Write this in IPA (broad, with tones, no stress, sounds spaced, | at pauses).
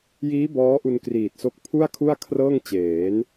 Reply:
j iː˦˥ b ɔː˦˥ ʔ u˧ n k r iː˨˩ t̚ s o˦˥ k̚ pʰ u˥˩ a̯ kʰ u˥˩ a̯ kʰ r ɤː˥˩ ŋ t͡ɕ eː˩˦ n